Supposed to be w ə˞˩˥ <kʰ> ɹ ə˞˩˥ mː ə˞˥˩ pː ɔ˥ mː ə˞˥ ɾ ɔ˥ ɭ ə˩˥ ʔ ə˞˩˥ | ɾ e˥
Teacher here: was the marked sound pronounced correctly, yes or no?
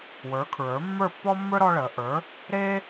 yes